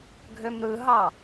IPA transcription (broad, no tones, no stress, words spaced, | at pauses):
ɡʱømɾɯɦɑ